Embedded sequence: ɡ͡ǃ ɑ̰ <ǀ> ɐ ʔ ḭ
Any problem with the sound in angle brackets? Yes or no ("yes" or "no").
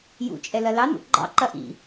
yes